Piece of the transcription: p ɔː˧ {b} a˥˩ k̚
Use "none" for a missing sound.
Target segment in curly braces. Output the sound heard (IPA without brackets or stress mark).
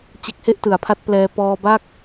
b